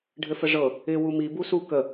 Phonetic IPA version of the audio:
ɖʱ ɘ f ə ʐ ɤ | ɪ w u m i b u s u k ə

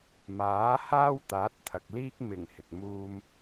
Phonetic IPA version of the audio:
m aː˨˥ h aː˥ w t̪ aː˨˥ t̚ t̪ʰ ɐ˨ k̚ l iː˥ k̚ m ɪ˨˩ ŋ h ɪ˨ k̚ m uː˥ m

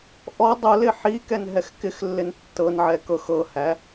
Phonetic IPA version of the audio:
ʔ ɔ dˤ o l ɪ ħ i k ɛ n ɦ ɛ x k ɪ x lː ɪ n tː ɤ n ʕ ɛ k ɤ x ɤ h æ

